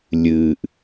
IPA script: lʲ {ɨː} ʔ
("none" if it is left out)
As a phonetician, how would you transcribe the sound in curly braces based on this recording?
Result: ɨː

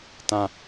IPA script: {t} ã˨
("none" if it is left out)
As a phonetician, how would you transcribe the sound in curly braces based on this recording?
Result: t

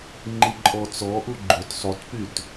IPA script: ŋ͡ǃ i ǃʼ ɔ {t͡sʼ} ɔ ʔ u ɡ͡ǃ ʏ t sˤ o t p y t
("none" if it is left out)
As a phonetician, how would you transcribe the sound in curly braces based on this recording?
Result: t͡s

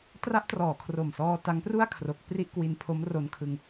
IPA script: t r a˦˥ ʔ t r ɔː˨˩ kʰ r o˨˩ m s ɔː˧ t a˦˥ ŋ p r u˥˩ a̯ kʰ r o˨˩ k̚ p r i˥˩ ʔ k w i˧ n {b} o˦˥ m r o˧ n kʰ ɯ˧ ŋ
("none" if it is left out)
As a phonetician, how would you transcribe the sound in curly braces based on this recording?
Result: pʰ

